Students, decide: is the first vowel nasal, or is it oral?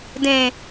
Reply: nasal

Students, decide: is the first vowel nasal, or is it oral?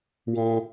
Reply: nasal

